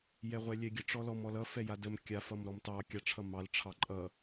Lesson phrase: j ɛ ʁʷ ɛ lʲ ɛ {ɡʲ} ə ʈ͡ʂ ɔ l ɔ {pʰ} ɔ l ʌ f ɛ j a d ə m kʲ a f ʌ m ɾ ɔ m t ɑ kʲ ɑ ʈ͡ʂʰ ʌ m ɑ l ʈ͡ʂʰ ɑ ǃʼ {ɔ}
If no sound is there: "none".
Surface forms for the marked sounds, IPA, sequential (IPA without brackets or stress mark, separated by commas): ɡʲ, m, ʌ